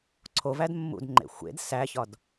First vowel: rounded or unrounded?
rounded